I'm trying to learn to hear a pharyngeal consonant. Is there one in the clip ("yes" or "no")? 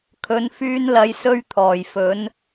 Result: no